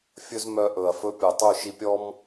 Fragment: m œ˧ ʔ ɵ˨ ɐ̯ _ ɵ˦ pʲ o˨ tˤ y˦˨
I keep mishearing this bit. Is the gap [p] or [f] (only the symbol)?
f